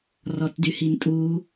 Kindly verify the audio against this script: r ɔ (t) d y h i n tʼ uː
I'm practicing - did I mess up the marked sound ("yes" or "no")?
no